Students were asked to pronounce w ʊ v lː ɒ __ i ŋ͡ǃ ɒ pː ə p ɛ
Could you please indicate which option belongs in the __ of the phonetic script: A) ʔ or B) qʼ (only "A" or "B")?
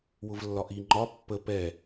A